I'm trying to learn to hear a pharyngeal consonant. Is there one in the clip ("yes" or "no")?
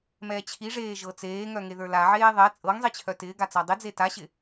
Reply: yes